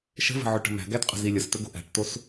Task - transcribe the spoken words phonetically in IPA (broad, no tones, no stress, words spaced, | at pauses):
ʃə̤və̤ ʕɵʈə̤mæ̤ɡæt qʼə̤zilʲəstɵ ɡo̤ʔæ̤ʈtos